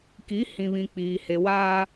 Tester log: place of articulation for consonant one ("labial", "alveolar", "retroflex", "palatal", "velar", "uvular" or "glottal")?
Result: velar